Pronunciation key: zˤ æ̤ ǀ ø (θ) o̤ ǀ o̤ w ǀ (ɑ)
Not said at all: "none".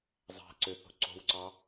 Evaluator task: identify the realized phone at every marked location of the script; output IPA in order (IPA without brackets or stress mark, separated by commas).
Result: θ, ɑ